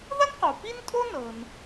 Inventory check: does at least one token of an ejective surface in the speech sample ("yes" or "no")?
yes